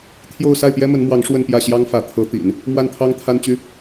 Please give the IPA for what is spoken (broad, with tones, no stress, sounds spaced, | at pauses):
t̪ʰ j o˥˧ ʊ̯ s a˥˩ ɪ̯ p j ɛ˥ m ə˧˥ n m w ɑ˧˥ ŋ ʂ w ə˥˧ n p j ä˥˩ ɕ j ɑ˥ ŋ f ä˧˥ t̪ʰ ɤ˧˥ t̪ ḭ˨˩˦ n | m w a˥˩ n t̪ʰ ɑ˥ ŋ t̪ʰ a˥ n t͡ɕ y˥